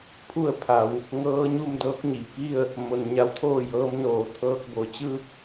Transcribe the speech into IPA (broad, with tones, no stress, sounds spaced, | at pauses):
pʰ u˥˨ ə̯ pʰ a˩˧ w | ŋ ɤː˧˥ ɲ u˥˨ m d ɤː˧˥ k̚ ɲ i˩ k i˥˨ ə̯ | m o˩ n ɲ a˧˥ w t̪ʰ oː˥˨ j ɤː˧˥ m n oː˧˩ t̪ʰ ɤː˧ k̚ b o˩ t͡ɕ ɯː˥˨ k̚